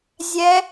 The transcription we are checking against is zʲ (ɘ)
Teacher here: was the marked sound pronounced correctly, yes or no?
no